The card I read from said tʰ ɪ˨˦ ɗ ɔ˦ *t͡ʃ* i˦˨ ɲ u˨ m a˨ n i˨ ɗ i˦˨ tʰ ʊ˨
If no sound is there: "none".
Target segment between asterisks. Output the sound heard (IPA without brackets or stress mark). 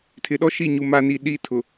ʃ